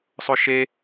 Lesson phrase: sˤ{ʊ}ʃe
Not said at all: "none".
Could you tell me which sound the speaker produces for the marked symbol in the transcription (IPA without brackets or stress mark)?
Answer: ʊ